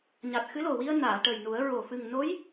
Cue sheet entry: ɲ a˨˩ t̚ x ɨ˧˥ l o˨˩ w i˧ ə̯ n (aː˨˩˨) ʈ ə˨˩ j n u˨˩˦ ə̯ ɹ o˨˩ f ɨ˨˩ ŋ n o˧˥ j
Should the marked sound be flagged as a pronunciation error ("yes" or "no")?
no